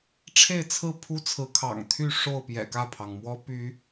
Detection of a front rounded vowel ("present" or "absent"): present